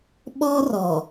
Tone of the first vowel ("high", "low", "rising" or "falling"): high